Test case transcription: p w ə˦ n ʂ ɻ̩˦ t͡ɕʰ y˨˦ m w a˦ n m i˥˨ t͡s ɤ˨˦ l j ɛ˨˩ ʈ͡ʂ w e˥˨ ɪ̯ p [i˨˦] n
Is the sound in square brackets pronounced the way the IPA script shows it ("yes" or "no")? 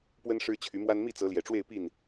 no